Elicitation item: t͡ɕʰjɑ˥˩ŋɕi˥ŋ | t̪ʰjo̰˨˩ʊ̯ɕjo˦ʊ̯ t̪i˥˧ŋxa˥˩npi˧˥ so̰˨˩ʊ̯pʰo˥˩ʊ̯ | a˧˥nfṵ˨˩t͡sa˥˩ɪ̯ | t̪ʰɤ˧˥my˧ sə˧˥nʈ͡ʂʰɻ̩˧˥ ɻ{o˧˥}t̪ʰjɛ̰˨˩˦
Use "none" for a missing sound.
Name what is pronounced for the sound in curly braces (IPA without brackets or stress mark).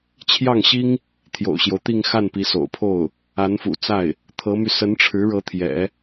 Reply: ɤ˧˥